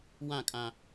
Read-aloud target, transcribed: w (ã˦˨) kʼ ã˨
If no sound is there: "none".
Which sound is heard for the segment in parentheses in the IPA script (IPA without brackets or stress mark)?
ã˦˨